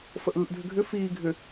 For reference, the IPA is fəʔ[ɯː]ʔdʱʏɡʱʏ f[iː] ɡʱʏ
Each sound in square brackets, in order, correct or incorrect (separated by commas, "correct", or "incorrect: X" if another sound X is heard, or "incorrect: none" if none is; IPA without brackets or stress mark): correct, correct